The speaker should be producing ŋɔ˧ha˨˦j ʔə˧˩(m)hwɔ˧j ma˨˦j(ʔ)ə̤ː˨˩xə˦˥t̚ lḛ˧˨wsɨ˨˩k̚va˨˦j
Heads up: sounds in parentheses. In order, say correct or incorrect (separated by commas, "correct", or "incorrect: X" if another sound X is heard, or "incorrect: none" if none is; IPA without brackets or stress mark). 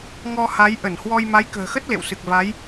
incorrect: n, incorrect: k